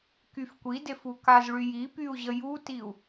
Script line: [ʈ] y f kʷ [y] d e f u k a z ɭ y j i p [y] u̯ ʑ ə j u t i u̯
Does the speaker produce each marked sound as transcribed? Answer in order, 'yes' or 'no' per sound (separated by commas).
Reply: no, no, yes